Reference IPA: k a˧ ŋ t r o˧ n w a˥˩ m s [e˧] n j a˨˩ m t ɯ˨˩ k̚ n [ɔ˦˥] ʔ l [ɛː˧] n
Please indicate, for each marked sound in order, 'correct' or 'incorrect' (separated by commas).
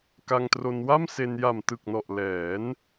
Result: correct, incorrect, incorrect